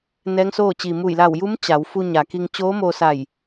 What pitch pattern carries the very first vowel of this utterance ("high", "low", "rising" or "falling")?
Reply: rising